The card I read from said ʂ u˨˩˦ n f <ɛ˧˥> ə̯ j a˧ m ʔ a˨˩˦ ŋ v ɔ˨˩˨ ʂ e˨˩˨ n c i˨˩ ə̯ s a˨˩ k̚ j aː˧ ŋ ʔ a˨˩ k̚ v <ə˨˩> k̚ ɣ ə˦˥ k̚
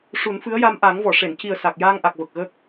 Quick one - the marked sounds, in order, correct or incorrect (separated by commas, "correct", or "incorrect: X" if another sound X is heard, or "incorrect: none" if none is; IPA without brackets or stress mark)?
incorrect: ɨ˧˥, correct